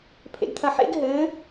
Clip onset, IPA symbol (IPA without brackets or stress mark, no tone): pʰ